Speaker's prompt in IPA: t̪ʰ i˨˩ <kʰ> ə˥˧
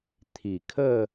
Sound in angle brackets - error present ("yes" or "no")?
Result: no